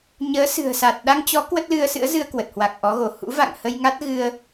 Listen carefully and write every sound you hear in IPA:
ɲ əː˨˦ s ɨ̤˨˩ ə̯ s a˨˩ t̚ ɗ a˧ ŋ t͡ɕ ɔ˨˦ k w ə˦˥ t̚ l ɨ˧ ə̯ s ɨ̰˧˥ ə̯ z ɨ˧ ə̯ k w ə˨˩ t̚ h w a˨˩ k̚ ʔ ɔ˨˦ ɣ o˧˩ h ṵ˧˥ v a̰˧˨ ŋ h ə˧ j ŋ a˦˥ t̚ ɣ ɨ˧ ə̯

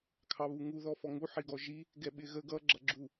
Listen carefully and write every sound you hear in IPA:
kʰ ɑ β u ŋ u ð ɔ f ɔ ŋ u ħ i ɡ ɔ ʒ i | ɡ ɛ ɓ ɪ ɣ ə ɡ ʌ ɡ͡ǁ ʌ ɡ͡ǁ u

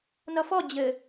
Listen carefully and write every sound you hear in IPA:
n ʌ f ɔ d͡ʑ ɘ

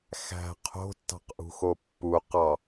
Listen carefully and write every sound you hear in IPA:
x æ̤ qʰ o̤ tː ɑ̤ q ʔ ṳ x o pː u q ɑ

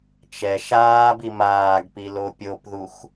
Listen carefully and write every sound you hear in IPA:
t͡ʃ ɛ ʃ aː b i m aː ɡ p i l o pʲ o p ð u x

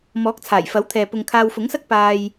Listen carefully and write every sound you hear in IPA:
m ɔː˨˥ k̚ t͡sʰ aː˨˩ j f ɐ˨˥ w t̪ʰ ɛː˨ p ʊ˧ ŋ kʰ aː˧ w f ʊ˨˥ ŋ s ɐ˥ k̚ p aː˧ j

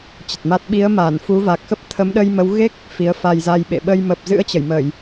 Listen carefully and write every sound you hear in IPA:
t͡ɕ ə˨˩ t̚ m a˦˥ t̚ ɓ i˨˦ ə̯ m aː˧˩ n f u˨˦ v a˨˩ k̚ x ə˦˥ p̚ t̪ʰ ə˨˦ m ɗ ə˧ j m ə˨˦ w ɣ e˦˥ k̚ | f i˨˦ ə̯ f a˧ j z a˧ j ɓ ḛ˧˨ ɓ ə˧ j m ə˨˩ p̚ z ɨ̰˧˥ ə̯ t͡ɕ ə˧˩ j m ə˧˩˨ j

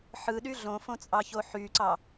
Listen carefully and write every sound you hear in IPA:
ħ ɯ ɗ y ɮ õ f õ t͡sʼ ɑ ç o ħ y ǀ ɑ

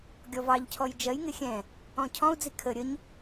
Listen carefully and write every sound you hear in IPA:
ɡʲ ɔ v ɑ ʎ cʰ ɔ j d͡ʒ ɜ j ŋ ɪ xʲ ɛ̃ | ɔ̃ cʰ ɔ̃ u̯ d͡z i kʰ ə ɾʲ ə ɲ

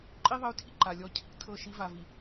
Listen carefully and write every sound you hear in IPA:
ǃʼ i˦ ðˤ ə˨˦ y̯ tʰ ḭ˨ ǃ a˨ lʲ ɔ˦ cʰ ḭ˦ tʰ ɤ˦˨ ʃ i˦ v a˨ v i˨

